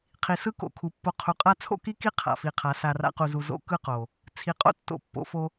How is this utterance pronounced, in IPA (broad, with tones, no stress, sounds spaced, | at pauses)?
qʰ i˨ s ɯ˦ k o̰˨ kʰ u˨ pː o˧ qʰ u˨ qʼ a˦ t͡sʰ o̰˦ k i˦ k i˦ qʰ a̰˨ f i˨ qʰ a˨˦ s a˧ r a̰˦ q u˧ z u˧ z o̰˦ k ɯ˦ q o˨ | t͡sʰ i˨ qʼ o̰˦ tː o̰˧ pː o̰˧ f o˧